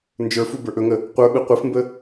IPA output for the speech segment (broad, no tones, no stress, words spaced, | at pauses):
nd͡ʒə˞fu bə˞ʔɵŋə | qʷə˞ɓɯ qʷɯfmbə